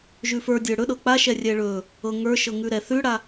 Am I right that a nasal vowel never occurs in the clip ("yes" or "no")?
yes